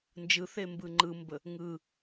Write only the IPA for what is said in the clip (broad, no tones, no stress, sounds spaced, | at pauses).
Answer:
n d͡ʒ ɯ θ e m b ɯ ŋ͡ǃ ɯ m b ə | ŋ ɯ